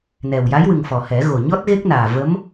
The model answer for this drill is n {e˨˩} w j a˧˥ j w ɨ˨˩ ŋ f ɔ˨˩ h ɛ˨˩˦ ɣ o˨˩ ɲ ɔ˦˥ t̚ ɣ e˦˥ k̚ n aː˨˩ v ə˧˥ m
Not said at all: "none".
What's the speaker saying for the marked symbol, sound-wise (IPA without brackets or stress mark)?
ɛ˨˩